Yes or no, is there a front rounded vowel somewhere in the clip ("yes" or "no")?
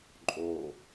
no